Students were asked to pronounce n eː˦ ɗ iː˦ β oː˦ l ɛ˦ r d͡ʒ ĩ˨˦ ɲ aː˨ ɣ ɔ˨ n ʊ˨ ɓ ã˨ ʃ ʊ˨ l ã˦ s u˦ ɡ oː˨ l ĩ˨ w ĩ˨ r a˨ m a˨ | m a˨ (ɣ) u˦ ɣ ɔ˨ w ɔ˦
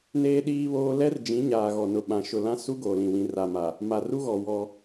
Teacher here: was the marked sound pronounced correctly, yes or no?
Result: no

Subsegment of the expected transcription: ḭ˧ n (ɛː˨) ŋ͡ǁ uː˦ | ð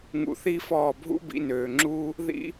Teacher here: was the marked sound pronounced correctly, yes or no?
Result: no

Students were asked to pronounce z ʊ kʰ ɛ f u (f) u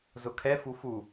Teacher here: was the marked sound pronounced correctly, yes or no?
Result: yes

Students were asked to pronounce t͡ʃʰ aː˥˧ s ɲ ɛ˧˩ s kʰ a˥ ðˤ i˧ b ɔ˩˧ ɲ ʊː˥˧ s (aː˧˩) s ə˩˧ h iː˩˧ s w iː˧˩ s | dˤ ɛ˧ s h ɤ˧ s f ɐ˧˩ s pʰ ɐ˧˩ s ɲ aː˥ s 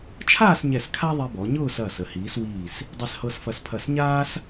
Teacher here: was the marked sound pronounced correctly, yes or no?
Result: no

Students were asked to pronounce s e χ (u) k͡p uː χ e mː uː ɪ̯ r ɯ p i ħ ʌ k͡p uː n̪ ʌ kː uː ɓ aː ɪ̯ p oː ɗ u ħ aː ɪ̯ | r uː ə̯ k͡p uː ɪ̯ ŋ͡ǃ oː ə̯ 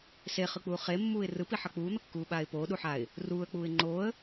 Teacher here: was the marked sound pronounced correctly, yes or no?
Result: no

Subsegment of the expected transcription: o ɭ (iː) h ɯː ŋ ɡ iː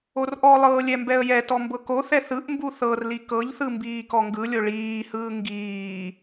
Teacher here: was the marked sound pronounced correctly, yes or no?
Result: yes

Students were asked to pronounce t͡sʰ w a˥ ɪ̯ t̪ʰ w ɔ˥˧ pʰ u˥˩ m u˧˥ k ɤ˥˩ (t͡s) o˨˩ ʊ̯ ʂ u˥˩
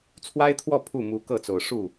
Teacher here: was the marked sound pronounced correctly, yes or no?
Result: yes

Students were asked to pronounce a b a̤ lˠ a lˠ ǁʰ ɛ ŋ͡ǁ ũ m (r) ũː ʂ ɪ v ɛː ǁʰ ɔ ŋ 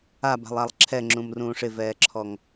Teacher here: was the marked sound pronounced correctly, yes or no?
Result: yes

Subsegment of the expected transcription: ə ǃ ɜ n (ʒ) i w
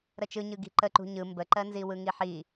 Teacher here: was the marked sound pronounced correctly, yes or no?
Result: no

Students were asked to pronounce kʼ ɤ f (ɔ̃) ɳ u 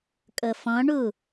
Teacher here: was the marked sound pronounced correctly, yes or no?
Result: yes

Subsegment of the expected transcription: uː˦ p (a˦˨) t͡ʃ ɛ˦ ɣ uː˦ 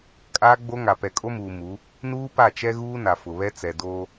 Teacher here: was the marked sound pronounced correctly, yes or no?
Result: yes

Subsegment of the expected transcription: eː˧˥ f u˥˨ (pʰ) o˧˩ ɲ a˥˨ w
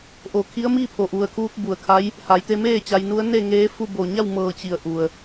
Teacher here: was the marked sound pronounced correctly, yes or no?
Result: no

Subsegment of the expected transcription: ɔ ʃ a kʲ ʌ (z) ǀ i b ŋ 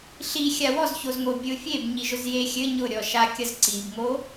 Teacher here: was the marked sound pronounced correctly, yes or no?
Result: yes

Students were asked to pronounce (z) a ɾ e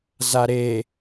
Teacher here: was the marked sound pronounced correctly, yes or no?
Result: yes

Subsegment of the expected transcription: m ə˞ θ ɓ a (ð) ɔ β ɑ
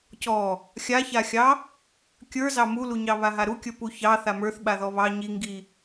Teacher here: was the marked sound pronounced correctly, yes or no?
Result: yes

